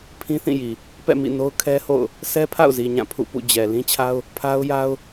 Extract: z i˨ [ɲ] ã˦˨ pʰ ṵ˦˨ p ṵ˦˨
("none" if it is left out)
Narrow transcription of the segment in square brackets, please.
ɲ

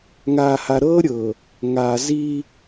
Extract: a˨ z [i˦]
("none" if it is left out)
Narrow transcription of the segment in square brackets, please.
i˦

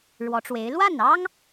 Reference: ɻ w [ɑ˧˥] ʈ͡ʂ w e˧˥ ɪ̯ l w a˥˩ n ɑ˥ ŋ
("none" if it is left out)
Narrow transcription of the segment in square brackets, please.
ɔ˧˥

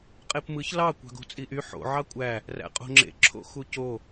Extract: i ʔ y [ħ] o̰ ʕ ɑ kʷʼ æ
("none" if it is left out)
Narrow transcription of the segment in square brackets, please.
ħ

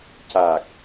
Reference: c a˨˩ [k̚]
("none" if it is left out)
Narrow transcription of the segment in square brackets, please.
k̚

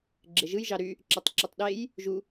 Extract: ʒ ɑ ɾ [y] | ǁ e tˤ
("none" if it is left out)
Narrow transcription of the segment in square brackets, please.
y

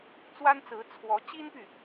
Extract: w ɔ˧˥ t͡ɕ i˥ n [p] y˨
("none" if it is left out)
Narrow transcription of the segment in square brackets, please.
p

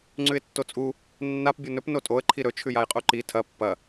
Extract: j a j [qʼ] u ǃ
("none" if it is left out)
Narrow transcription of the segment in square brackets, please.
qʼ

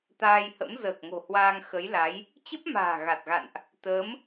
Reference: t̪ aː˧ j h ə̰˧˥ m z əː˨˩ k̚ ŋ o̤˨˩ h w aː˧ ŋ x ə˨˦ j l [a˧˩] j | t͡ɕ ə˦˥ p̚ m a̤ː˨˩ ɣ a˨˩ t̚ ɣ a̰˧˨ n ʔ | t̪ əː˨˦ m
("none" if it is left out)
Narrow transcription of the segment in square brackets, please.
a˨˦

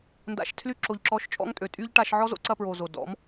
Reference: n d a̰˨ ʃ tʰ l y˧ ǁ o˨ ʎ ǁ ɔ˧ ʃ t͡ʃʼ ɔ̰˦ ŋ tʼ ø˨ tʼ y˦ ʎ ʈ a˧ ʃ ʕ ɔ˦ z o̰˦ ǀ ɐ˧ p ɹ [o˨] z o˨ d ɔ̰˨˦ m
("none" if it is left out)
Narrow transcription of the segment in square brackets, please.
o˨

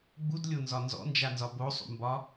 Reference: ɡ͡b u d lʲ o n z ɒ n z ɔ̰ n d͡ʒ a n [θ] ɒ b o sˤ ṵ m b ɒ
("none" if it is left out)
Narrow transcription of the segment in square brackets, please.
z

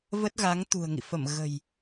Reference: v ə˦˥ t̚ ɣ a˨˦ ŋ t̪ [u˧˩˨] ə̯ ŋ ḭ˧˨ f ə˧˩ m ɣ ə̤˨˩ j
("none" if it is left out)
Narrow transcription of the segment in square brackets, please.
ṳ˨˩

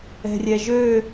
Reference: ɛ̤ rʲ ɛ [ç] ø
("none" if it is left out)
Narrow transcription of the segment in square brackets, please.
ʒ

